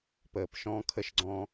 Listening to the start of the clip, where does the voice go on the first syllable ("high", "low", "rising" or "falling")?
low